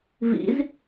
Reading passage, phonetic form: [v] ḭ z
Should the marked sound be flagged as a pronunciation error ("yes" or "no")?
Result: no